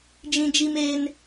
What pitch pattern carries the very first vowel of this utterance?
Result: high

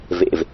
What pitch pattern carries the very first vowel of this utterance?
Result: low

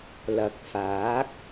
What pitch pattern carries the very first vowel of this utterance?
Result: rising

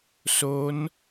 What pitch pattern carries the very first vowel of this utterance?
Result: rising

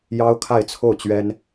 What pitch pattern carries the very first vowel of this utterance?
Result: high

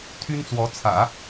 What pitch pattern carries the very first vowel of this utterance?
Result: high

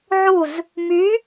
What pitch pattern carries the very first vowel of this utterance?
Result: falling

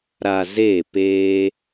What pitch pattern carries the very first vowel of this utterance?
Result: low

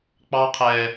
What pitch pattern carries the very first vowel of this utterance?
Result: high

